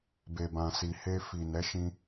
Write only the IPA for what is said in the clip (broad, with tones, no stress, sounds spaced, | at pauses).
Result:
b e˨ b ã˨ s i˨ h e˧ f i˨ n ɛ˨˦ ʃ ĩ˧